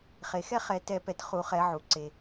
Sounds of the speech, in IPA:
χe˩xɛ˥˧χɛ˨˩˦ tɛ˨˩˦pɛ˩t χu˨˩˦χɛ˨˩˦ʕu˩ ǀe˩

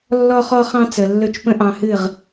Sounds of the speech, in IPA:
lːɔ˧χɔ˧χɑ̃˧ t͡sə˨lːɵ˧t͡ʃpə̃˦ ʔɑ̃˧hɨ˦˨ʁ

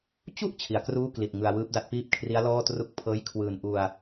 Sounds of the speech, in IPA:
t͡ɕu˥˩ʔ t͡ɕʰi˩˦a̯kruː˥˩kli˨˩t̚ ŋɯ˧a̯wɯː˦˥p̚da˥˩t̚ piː˥˩p̚kʰri˦˥a̯lɔː˥˩ tru˦˥k̚pʰɤː˦˥jkʰwɯː˧n ʔu˧a̯

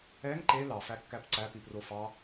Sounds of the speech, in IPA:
ɛŋ ǃe lɑfækːæp ǀæpi profɑ

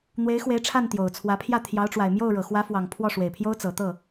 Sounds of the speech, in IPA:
n̪we˧˥ɪ̯xwe˧˥ɪ̯ ʈ͡ʂʰa˥˩nt̪jo˨˩ʊ̯t͡sʰwä˧˥pʰjä˥˩ t̪ʰjɑ˧˥ʊ̯ʈ͡ʂwa˨˩ɪ̯mjo˥˩ʊ̯ ɻɤ˨˩xwä˧˥fwɑ˨˩ŋ pʰwɔ˥˩ʂwe˨˩ɪ̯pʰjo˥ʊ̯ t͡sɤ˨˩ t̪ɤ˥˩

